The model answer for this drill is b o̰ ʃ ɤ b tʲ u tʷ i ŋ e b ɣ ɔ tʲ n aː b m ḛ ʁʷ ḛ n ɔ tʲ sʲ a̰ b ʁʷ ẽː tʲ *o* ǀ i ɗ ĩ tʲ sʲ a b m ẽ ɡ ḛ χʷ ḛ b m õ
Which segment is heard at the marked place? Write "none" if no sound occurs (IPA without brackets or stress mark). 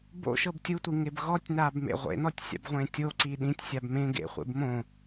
o